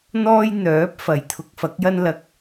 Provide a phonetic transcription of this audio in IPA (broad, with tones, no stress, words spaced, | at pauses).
n̪ɔː˥j n̪œː˨˥p̚fɐ˨˩j t̪ʰʊ˧k̚fɐ˨˥k̚jɐ˥n lɐ˧k̚